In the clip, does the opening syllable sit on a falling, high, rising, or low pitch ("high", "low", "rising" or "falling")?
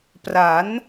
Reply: rising